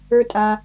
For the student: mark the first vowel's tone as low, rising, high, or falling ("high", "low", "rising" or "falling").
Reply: high